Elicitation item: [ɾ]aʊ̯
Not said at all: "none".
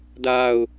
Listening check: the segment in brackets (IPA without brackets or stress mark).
d